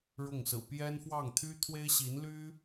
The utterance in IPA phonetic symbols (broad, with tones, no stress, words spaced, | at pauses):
ɻʊ˥˩ŋ sɹ̩˨˩pjɛ˥nfwɑ˥˩ŋ t̪ʰy˥t̪ʰwe˥ɪ̯ɕi˧˥n ly˥